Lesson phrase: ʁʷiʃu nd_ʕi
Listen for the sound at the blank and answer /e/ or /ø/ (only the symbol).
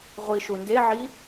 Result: e